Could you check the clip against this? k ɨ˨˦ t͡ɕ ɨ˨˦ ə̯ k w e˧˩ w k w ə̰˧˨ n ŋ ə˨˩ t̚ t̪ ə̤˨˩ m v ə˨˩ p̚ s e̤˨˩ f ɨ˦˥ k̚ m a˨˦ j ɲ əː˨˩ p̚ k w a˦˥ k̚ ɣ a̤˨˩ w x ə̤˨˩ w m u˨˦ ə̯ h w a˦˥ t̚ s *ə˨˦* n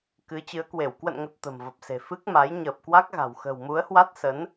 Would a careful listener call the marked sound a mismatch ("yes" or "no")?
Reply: no